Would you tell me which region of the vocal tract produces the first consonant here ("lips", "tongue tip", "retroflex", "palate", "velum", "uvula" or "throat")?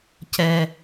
palate